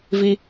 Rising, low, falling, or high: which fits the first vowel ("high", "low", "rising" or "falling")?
low